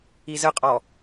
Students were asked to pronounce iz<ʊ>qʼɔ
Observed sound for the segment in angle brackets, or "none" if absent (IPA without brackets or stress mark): ə